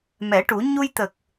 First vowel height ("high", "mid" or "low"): mid